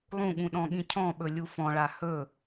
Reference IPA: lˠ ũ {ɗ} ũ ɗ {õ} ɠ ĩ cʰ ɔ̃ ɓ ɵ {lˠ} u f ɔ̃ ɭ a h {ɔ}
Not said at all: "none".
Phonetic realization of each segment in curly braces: ɠ, ɔ̃, lʲ, ɵ

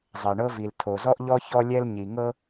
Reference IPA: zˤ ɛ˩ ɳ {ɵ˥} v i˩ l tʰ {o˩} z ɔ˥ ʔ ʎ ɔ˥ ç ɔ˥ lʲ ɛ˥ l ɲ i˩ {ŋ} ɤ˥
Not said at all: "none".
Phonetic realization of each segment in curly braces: ɤ˥, o˩, ŋ

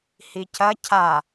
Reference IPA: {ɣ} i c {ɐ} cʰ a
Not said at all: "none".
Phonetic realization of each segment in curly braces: h, ɐ

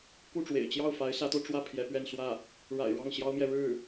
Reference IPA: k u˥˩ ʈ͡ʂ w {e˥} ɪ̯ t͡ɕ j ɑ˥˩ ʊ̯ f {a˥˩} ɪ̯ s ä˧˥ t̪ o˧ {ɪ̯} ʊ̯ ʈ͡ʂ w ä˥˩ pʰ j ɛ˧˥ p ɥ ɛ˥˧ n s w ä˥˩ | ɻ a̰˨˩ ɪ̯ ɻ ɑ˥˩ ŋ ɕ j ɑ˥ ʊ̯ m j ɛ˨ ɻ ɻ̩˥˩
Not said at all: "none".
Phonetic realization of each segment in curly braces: ḛ˨˩, a˧˥, none

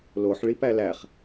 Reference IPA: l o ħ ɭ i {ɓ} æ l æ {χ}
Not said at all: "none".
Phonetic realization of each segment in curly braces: p, χ

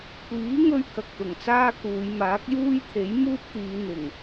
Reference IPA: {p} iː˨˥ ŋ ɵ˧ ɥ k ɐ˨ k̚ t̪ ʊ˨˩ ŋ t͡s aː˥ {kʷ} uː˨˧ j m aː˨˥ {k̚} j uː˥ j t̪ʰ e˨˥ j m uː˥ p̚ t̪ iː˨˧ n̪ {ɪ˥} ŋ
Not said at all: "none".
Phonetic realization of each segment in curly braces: kʷ, k, k̚, ɪ˨˩

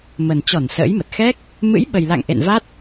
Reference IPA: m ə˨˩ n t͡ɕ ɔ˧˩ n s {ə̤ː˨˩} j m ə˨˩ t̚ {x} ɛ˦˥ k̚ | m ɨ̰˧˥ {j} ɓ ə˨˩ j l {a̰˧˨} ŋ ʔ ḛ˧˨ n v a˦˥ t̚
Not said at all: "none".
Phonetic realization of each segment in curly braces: ə̰ː˧˥, x, j, a̰˧˨

